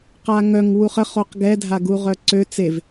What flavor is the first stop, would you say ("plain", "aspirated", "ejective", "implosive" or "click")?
plain